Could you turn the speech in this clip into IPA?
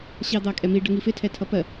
ɕɑd̪ɑkʼɛmi ɖəŋifɪ tʰɛtʰʌpɜ

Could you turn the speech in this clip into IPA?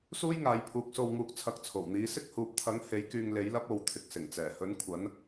suː˥jŋaː˨˧j pʰuː˨˥k̚so˧wŋuː˧k̚ t͡sʰɐ˨˥k̚t͡sʰo˨˩wn̪iː˨˥ sɪ˥k̚huː˨p̚t̪ʰɐ˨˥ŋ he˨˥jkyː˧ŋ le˨˥jlɐ˥p̚ o˨˧wt̪ʰɪ˨k̚ sɪ˨˩ŋt͡sɛː˨˩hɵ˨˥n kʷʰɐ˨˥n

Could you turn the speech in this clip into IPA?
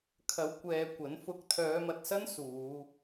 kʰɐ˨˧w kʷɛː˨ kʷɐ˨˥n fʊ˨˥k̚t̪ʰœː˨˧mɐ˨t̚sɐ˥n suː˨˧

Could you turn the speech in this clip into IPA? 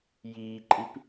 jiːǃʼip

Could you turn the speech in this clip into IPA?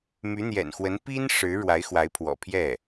my˧˥n̪jɛ̰˨˩nxwə˧˥n pi˥n ʂɻ̩˧˥ɻwa˧˥ɪ̯xwa˧˥ɪ̯pʰwɔ̰˨˩ pʰjɛ˥˩

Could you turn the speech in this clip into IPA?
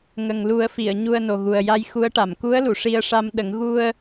ŋə˨˩ŋ lu˨˩˦ə̯fi˨˩˨ə̯ ɲu˧ə̯no˨˩ɣu˨˩ə̯ ja˧jxu˧˥ə̯ʈa˨˩˨m ku˧˥ə̯lu˨˩˨ ʂi˧ə̯ʂa˧mɗə˨˩˦ŋ ɣu˧ə̯

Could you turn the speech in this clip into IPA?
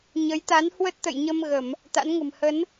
ɲə˨˦jt̪a˨˦n hwə˦˥t̚t̪ə̰˧˨jɲə˧m ɣə˧˩˨m | t̪a̰˧˥nŋə̤˨˩m hə˨˦n

